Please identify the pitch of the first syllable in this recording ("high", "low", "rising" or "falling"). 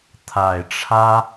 low